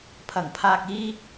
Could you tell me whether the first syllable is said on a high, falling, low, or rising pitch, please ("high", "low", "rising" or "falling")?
low